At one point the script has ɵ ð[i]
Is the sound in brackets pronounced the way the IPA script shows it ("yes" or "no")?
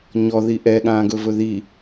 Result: yes